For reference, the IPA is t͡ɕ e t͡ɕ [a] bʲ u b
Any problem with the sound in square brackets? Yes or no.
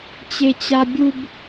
no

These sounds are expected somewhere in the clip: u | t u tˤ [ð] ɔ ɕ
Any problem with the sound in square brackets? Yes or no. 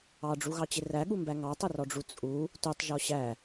yes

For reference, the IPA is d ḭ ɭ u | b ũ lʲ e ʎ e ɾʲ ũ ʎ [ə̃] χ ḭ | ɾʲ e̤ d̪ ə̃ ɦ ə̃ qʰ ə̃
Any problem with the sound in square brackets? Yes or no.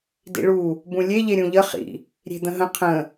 yes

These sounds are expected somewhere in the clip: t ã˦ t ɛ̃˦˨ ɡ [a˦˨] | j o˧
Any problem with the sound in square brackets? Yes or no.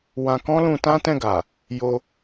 yes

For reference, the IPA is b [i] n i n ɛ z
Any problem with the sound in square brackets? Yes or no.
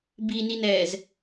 no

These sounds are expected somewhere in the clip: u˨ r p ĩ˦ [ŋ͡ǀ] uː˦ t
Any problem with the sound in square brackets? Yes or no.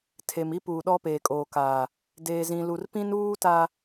yes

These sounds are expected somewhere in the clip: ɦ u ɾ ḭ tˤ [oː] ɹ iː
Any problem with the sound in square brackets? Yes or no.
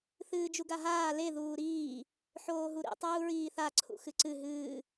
yes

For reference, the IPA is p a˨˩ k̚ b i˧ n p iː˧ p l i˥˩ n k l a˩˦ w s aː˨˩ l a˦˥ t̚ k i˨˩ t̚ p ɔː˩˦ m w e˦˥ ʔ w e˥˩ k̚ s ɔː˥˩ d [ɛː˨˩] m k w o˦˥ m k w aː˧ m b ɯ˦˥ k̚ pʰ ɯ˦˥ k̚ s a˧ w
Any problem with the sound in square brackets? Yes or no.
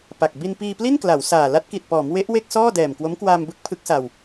no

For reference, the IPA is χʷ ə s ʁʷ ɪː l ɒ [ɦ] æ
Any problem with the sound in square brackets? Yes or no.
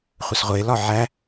yes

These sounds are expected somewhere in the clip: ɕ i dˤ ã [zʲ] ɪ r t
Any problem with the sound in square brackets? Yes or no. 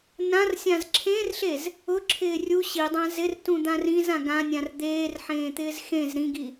yes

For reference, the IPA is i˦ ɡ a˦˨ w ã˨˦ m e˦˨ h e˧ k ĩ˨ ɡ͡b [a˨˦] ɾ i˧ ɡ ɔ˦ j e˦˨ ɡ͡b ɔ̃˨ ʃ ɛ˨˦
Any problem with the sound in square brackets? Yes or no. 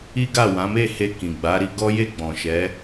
no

